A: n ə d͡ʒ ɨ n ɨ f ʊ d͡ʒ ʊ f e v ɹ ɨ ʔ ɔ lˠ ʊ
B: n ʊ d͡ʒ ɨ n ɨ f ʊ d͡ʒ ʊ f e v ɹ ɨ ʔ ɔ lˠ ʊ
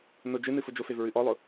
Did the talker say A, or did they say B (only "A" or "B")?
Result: B